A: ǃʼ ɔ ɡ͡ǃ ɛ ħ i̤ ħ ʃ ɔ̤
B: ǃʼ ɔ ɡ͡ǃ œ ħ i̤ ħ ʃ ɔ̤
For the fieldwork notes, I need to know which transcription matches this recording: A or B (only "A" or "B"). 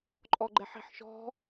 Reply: A